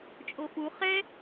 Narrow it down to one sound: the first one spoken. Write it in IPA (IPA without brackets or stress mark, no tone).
t͡ʃʼ